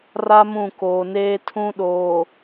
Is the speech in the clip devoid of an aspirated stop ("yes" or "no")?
no